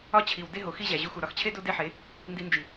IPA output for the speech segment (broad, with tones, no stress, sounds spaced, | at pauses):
ɒ˦ t͡ɕʰ i˨ w d e˦ ɦ o˨ x i˦ ʑ æ˨ ʑ u˧ x u˨ ɾ ɒ˨ x t͡ɕʰ e˦ d o˦ d e˦ ħ e˨˦ | n d i˧ n d͡ʒ i˨